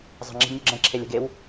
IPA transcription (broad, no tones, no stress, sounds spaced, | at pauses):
zˤ ə̤ ŋ͡ǁ i̤ ɡ nʲ ʉ ɡ͡ǁ ɛ̃ ǁʰ e lʲ ə̤ ɡ e w